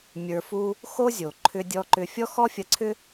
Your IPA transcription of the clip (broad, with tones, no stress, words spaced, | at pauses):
mʲə˞˧fu˥ | xo˥zʲo˩ ǃʰʏ˧dʲɔ˧ ǃʏ˧ fʲɔ˥ xɔ˥ fʲɐ˧ǀʰʏ˥